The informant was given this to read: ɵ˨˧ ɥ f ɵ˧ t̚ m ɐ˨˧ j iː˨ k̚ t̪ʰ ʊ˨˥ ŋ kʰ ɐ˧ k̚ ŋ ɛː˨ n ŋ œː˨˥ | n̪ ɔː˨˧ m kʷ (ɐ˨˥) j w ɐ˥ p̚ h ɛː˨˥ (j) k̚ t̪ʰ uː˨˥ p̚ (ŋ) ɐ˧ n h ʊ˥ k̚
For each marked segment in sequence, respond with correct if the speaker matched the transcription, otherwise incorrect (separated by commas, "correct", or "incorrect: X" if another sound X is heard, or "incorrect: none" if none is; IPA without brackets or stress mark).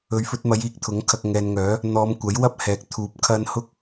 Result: correct, incorrect: none, incorrect: kʰ